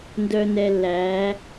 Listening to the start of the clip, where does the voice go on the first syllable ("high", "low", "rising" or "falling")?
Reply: low